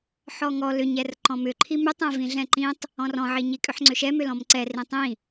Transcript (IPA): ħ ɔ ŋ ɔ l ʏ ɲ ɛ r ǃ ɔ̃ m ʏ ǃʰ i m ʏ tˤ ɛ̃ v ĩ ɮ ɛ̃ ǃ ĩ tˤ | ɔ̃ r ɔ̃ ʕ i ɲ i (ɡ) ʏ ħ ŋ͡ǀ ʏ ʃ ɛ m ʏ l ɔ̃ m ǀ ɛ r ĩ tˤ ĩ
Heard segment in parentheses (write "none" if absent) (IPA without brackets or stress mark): kʼ